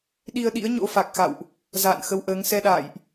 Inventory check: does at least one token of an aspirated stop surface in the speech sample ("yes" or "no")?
no